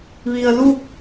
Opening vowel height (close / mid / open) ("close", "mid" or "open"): close